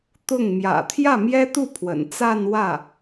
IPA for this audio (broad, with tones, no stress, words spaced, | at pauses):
t̪ʊ˥˩ŋ mjä̰˨˩t̪ʰjä˥˩ mjɛ˥t̪u˥˩ pʰwə̰˨˩n t͡sa˥˧n wä˥˩